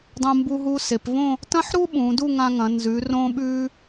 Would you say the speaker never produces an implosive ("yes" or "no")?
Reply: no